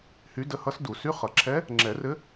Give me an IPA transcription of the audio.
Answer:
h y˧˥ d ə˧˥ h ʌ˧˥ s d u˨˩˦ s y˧˥˧ χ ʌ˨˩˦ ǁʰ ɛ˧˥ | ŋ͡ǁ ɛ˨˩˦ r ɘ˧˥

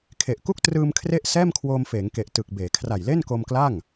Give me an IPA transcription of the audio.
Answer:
kʰ e˨˩ ʔ k u˥˩ k̚ t r ɯː˧ m kʰ r e˥˩ ʔ s ɛː˥˩ m kʰ w oː˧ m f eː˩˦ ŋ k e˨˩ ʔ t ɯ˨˩ k̚ b eː˩˦ kʰ r a˨˩ j l e˥˩ n k o˧ m k l a˥˩ ŋ

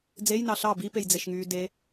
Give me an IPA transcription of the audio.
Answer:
d͡z e j n ɑ ɬ ɑ b i p e j d͡z e ʃ ŋ yː d e

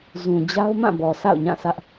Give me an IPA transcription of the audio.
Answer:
z ũ˨ d͡ʑ a˦ ʊ̯ m ã˦˨ b ɔ˨ sʰ a̰˦˨ ʊ̯ ɲ ã˦˨ sʰ ä˦ ʔ

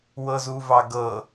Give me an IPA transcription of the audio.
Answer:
w ɤ z u v ɑ ɡ ɤ

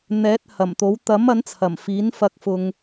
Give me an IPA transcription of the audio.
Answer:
n̪ ɛː˨˥ t̚ h ɐ˨˩ m t̪ o˨˥ w t̪ ɐ˨˥ m ɐ˨˥ n t͡sʰ ɐ˨˩ m f iː˨˥ n f ɐ˧ k̚ f ʊ˥ ŋ

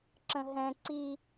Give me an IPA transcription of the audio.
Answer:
ǁ ə̃ ɦ ɛ̃ ǀ i

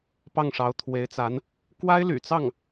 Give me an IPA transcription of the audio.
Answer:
p ɑ˥˩ ŋ ʂ ɑ˧˥ ʊ̯ t̪ʰ w e˧˥ ɪ̯ t͡s a˧˥ n | k w a˥ ɪ̯ l y̰˨˩ t͡s ɑ˥˩ ŋ

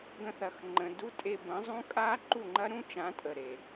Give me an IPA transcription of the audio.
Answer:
ɡ ə̃˧ θ ɐ˨ x ŋ͡ǃ ə̃˨ d u˦ tʼ e˧ b ə̃˨˦ zˤ ũ˦ kʼ a˦ ǃ u˦˨ ŋ͡ǃ ɐ˦ ɾ ũ˦ t͡ʃ ã˨˦ tʼ ə˨ ɾ e˨

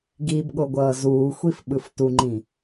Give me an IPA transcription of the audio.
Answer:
ɡ i b ɠ o ɡʷ ʌː z uː xʷ i f ɓ ɯ f t u ŋ͡ǃ ĩ

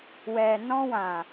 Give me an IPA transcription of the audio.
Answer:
w ɛ˨ n ɔ̃˧ w ã˨

